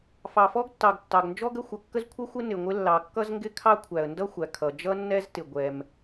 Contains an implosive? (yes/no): no